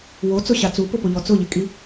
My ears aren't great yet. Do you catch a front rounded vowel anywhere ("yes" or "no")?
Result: no